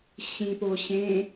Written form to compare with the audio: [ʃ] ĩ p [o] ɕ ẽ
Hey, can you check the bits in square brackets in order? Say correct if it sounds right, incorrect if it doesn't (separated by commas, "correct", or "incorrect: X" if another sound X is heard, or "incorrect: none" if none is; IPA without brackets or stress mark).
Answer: incorrect: ɕ, correct